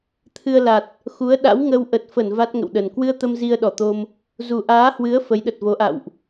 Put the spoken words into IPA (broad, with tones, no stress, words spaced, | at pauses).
t̪ʰɨ˧ə̯ la˨˩t̚ | xu˨˦ə̯ɗa̰˧˥wŋə˧w ʔə˨˩t̚fə˧˩n va˦˥t̚ŋə̰˧˨wɗə˨˩n kwɨ˧ə̯t̪ə˧m zi˧ə̯ɗɔ˧˩t̪o˧m | zu˨˩ʔaː˨˦hwɨ˨˦ə̯ fə˨˦jɗə˨˩t̚vo˨˦ʔa̰˧˨wʔ